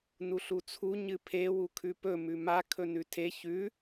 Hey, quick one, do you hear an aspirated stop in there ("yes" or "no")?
yes